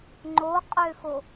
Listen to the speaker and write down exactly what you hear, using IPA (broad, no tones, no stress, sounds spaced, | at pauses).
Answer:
ŋ͡ǃ o qʼ ø x o